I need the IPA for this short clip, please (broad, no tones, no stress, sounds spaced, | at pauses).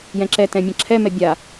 j ɛ̃ ǁ ɛ t ɛ̃ mʲ ɐ̃ ǁʰ ɛ m ɛ bʲ a